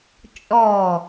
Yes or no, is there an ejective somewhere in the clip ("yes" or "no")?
yes